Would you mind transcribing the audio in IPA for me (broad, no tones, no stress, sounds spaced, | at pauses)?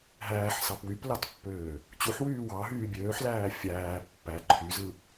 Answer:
ɦ æː ħ s ɑ p w y p l ɑ t pː øː | t͡ɕ u ħ w yː w ɑ ɦ yː bʲ øː ħ l æː fʲ æː pː æ ǃʰ y z ɯ